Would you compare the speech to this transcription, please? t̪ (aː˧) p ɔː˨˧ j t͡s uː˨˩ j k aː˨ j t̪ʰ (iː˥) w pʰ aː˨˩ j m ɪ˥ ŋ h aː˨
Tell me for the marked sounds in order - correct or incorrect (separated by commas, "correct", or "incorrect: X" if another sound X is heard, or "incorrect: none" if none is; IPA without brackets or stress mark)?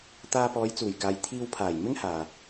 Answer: correct, incorrect: iː˧